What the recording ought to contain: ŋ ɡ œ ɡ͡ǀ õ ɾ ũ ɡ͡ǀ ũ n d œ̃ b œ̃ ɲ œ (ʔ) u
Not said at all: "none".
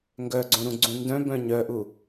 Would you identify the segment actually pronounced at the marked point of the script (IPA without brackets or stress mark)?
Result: ʔ